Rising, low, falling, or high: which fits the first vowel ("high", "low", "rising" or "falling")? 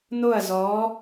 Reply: falling